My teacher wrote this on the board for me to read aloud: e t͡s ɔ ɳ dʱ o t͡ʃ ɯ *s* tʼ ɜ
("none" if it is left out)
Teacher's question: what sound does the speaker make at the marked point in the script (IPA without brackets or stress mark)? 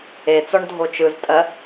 z